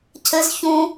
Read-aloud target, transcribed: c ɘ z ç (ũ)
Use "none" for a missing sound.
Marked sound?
ũ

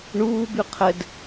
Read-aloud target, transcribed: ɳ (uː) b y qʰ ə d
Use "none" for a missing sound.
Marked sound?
uː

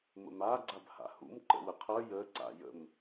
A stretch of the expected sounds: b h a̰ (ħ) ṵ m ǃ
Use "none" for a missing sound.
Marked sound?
h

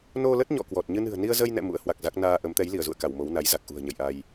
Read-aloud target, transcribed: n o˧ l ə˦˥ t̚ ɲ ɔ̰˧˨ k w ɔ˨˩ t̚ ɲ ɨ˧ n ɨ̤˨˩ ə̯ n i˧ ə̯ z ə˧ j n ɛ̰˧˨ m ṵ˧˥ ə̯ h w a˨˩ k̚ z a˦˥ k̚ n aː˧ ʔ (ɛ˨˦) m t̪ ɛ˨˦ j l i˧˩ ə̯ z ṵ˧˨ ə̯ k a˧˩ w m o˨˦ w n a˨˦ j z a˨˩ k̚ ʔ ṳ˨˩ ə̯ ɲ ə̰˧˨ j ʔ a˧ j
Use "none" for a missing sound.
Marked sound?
ə˨˦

